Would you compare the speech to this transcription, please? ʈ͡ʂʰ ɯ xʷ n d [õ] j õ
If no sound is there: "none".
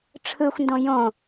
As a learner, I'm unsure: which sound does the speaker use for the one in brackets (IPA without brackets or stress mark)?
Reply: õ